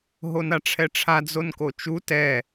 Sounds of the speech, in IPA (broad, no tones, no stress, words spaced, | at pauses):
ɦonaʈ͡ʂʰɛʈ͡ʂʰa d͡zonkot͡ʃu tɛ